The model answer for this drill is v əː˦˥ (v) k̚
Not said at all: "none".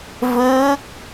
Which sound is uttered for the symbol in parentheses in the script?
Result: none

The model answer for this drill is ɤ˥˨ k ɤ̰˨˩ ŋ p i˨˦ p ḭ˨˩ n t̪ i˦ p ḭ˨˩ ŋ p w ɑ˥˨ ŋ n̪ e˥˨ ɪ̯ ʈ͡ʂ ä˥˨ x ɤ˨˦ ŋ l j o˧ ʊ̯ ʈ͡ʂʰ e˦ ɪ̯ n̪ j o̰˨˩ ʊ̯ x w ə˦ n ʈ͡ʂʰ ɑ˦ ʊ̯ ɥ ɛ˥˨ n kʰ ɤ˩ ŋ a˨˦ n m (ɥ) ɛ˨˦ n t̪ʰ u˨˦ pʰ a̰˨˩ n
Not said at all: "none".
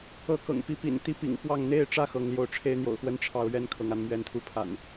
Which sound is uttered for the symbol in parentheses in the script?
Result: ɥ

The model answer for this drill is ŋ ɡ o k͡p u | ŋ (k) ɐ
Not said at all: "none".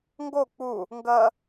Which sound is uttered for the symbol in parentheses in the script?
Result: ɡ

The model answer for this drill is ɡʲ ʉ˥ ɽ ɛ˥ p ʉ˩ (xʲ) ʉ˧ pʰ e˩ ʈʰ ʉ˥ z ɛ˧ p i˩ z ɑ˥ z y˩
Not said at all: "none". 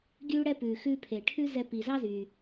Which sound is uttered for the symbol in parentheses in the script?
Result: x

